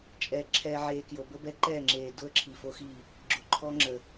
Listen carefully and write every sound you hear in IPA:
t͡ʃʼɛː˨ǁʰɛː˨ʕeː˨ kjo˨bə˦bɛ˦ǃɛː˦˨ ŋ͡ǁeː˨ dʊ˦ə̯ǁʰi˨fo˦xiː˦˨ | ɡ͡ǁʊ˨ǃʰɔ˦ŋ͡ǁə˨

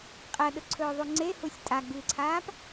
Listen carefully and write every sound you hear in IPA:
qʼɐɗɵǀʰɵːðˤu ŋ͡ǀehusʲ tʼaɡ͡bɨːǀʰaːp

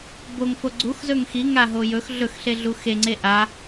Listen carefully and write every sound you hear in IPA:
boŋfo ɡ͡ǀuxzɵŋ xiŋaɦo jɵx ɮɵxɬeɮu xeŋ͡ǀe ʔa

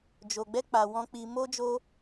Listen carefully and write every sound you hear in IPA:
d͡ʒo˧ɡ͡bɛ˦ k͡pa˧ wɔ̃˦ k͡pi˧mo˦d͡ʒo˦

